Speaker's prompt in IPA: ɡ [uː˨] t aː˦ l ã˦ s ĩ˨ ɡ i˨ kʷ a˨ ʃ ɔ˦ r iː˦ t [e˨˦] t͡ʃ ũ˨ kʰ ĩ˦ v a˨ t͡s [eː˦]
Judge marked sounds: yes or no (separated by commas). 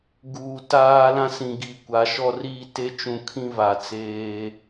yes, no, yes